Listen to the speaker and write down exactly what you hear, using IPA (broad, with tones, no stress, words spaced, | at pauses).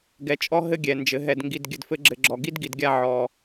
ɡɛ˨t͡ʃʼɔ˦ ɦɘ˦ɡʲɛ˨ nd͡ʒɘ˨ɦɛ˨dŋɡi˨d ɡʲɘ˨dfɘ˦ɡ͡ǁɘ˨ɡ͡ǁɔ˨ ɡi˦dɡi˨dɡʲa˦˨ ʕɔ˨